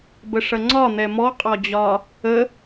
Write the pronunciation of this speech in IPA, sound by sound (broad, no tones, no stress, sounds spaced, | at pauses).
b ə ʂ ɐ ŋ͡ǀ ɒ n̪ ɛ m ɔ qʼ ɒ d͡ʑ ɒ | ə